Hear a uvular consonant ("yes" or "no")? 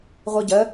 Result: yes